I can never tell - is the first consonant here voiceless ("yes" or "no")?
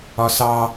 yes